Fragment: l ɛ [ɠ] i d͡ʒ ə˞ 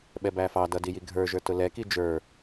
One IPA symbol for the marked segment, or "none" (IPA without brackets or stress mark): k